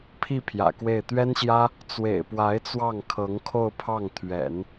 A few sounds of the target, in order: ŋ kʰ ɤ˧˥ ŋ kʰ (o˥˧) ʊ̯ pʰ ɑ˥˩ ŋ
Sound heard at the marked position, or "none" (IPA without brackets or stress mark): o˥˧